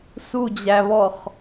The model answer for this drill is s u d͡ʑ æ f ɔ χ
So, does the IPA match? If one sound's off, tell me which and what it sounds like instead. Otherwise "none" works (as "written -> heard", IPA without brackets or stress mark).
f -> β